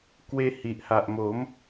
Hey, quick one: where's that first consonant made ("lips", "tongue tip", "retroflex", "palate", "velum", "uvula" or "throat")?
velum